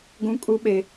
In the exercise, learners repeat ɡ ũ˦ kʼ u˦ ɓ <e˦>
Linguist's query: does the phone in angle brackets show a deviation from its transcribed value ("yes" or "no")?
no